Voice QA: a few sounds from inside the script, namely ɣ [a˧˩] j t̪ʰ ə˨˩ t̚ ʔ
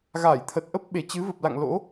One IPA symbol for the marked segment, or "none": aː˧˩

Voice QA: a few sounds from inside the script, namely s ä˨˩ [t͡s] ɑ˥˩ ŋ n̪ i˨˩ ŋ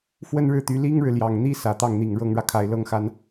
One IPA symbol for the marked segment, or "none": t̪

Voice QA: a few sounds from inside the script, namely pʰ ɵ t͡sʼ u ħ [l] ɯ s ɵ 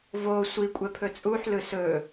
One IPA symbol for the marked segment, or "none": l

